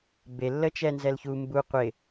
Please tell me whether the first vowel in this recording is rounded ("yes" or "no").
no